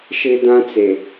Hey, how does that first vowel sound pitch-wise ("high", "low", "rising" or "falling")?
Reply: high